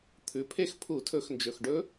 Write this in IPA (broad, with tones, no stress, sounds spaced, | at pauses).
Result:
t̪ʰ ʉ˩˧ pʰ e˥˧ x pʰ u˧˩˧ tʰ ɵ˧˩˧ x n d͡ʒ ɵ˨˩ x ɖ ɵ˦˥